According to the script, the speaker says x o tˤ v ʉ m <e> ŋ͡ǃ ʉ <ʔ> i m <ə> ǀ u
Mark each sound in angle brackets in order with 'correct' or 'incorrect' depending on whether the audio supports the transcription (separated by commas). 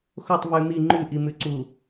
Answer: incorrect, correct, incorrect